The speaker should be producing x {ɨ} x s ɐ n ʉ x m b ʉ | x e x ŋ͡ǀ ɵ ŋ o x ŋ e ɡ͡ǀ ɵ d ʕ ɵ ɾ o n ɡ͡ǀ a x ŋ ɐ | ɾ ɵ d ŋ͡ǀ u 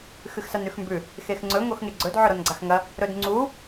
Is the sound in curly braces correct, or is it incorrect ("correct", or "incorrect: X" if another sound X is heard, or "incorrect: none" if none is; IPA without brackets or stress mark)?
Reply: correct